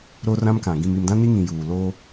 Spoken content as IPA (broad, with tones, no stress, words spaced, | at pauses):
ɾo˦rã˦mkã˨ ɡĩ˨mi˨mdã˦ ni˦ŋĩ˨ juː˨lo˦